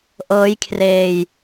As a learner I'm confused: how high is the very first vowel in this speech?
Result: mid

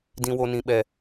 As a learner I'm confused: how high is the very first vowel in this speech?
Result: high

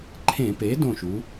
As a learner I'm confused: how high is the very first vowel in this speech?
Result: mid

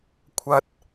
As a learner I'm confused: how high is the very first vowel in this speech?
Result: low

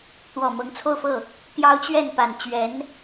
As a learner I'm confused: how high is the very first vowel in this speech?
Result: mid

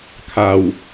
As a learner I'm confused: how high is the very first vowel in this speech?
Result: low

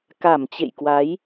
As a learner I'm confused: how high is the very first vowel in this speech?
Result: low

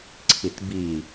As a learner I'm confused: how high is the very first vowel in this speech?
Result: high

